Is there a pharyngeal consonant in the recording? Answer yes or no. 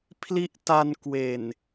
no